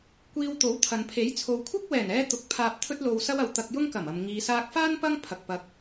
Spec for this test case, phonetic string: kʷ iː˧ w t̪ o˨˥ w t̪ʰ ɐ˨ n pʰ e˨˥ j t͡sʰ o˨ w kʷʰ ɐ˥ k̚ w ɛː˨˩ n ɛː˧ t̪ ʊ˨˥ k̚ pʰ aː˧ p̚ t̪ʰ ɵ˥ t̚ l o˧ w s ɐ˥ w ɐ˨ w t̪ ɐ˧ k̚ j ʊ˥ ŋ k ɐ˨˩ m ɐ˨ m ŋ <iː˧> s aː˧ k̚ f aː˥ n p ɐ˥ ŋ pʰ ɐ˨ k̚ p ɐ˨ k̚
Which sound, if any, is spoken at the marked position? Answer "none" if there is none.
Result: iː˨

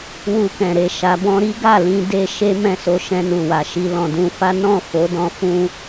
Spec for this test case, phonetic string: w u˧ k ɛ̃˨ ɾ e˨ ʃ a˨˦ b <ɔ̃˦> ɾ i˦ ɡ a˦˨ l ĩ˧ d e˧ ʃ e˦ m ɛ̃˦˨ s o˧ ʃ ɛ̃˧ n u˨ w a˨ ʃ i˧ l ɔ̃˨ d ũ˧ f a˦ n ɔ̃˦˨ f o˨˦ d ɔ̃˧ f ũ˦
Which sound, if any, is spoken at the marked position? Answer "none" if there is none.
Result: ɔ̃˦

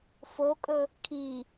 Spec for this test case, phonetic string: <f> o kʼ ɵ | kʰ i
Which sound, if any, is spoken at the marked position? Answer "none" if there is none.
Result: f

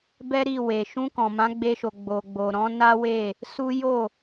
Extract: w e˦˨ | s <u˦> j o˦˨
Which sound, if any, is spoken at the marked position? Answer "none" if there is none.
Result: u˦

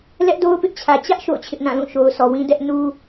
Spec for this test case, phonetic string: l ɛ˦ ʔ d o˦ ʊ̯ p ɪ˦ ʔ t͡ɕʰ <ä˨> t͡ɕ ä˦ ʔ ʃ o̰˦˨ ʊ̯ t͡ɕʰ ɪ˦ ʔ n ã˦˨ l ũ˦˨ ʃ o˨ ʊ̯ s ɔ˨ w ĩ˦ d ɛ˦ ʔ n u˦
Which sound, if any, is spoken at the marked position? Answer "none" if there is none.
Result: ä˨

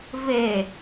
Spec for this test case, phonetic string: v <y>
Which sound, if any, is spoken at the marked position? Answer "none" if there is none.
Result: e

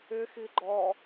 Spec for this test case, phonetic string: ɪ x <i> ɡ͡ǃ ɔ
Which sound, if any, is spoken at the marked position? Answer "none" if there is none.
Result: i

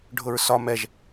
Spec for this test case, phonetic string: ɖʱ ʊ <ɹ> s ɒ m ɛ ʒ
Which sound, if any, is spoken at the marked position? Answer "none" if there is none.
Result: ɹ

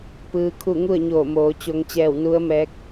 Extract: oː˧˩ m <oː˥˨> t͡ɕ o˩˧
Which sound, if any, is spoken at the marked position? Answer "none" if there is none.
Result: oː˩˧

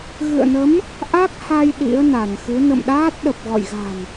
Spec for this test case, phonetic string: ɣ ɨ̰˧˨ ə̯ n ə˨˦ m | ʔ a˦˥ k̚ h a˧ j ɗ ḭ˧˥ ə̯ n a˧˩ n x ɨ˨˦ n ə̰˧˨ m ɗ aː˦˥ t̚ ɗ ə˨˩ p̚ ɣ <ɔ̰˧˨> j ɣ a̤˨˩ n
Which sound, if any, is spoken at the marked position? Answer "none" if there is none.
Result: ɔ̰˧˨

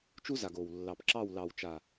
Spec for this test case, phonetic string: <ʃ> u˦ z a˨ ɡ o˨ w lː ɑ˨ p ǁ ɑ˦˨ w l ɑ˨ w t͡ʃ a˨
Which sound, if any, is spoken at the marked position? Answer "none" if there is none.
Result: t͡ʃ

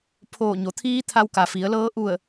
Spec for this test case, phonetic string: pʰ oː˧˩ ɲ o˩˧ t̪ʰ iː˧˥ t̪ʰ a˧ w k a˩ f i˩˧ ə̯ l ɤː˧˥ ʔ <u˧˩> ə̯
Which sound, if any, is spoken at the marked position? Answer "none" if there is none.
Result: u˧˩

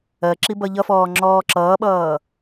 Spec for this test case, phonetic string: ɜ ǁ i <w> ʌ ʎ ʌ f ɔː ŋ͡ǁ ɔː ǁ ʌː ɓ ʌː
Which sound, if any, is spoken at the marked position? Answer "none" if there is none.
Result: b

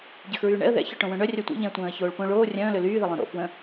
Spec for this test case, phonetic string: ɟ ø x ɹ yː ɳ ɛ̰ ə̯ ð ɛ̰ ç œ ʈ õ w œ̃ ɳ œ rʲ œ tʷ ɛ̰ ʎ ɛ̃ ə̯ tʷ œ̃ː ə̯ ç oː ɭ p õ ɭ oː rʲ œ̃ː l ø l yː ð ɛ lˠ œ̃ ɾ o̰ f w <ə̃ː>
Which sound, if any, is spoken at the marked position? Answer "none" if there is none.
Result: ə̃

